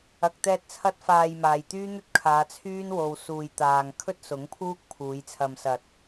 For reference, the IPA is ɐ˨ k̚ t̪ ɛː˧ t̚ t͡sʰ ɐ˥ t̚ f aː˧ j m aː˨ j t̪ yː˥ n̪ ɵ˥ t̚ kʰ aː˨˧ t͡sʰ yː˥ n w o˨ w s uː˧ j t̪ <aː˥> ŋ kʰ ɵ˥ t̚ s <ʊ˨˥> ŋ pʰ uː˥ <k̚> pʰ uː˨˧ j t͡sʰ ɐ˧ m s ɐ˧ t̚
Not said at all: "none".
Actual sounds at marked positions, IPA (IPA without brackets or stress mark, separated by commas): aː˧, ʊ˨˥, k̚